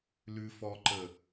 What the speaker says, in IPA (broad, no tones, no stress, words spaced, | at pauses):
lʉfɔǃə